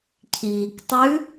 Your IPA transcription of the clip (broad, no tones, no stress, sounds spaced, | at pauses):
cʰ iː k tˤ ʉ